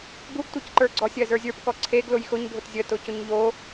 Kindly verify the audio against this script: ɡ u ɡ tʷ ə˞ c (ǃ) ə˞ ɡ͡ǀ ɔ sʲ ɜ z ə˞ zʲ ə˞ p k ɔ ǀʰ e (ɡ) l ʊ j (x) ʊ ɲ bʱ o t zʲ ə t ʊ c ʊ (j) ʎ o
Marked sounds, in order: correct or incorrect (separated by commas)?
correct, correct, correct, incorrect